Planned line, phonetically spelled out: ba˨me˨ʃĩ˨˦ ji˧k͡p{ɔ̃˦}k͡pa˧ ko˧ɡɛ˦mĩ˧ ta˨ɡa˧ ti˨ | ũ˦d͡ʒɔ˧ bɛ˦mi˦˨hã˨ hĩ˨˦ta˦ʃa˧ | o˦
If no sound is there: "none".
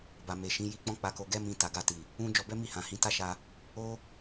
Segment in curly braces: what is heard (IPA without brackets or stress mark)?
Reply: ɔ̃˦